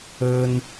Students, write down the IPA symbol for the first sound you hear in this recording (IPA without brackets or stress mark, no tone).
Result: ɵ